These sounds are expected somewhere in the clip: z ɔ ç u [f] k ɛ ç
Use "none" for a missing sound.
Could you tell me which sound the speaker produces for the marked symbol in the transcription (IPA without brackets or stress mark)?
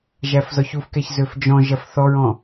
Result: f